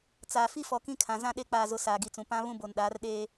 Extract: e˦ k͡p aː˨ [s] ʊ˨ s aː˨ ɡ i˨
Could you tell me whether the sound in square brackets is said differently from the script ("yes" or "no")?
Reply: yes